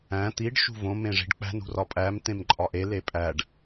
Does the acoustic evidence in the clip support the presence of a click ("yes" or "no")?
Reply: yes